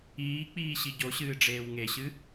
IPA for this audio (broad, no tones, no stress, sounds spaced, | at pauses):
iː k͡p iː ɕ i ɟ o ɕ ɨː ɖ͡ʐ eː w ŋ e ɕ ɨ